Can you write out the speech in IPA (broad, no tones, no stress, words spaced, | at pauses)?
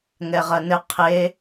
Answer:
ŋɛʁɐnɘ qʰe